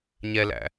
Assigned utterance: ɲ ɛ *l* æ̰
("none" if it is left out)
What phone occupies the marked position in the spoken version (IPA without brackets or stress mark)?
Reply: l